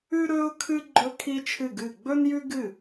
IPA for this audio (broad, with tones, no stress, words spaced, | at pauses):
ʉ˥ɾɵ˥ʊ̯kʰɨ˥ ɡ͡ǃɵ˥kʰi˥t͡ʃʰɨ˥˩ɡɨ˥˩ ɡ͡bɵ˥njʉ˥ɡɨ˥˩